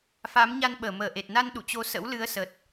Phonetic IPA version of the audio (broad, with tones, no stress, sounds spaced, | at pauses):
f a˨˦ m ɲ a˧ n ɓ əː˧˩ m əː˨˩ ʔ e˨˩ t̚ n a˧ n ɗ ṵ˧˨ t͡ɕ o˨˦ s ə̰˧˥ w l ɨ˨˦ ə̯ s ə˨˩ t̚